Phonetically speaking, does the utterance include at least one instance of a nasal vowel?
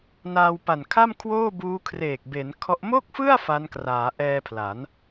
no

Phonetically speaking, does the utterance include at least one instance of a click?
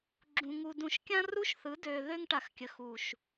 yes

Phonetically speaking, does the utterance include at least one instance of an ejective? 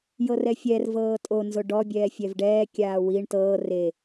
yes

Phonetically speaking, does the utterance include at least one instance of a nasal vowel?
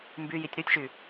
no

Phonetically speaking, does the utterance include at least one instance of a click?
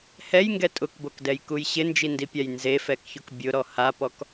no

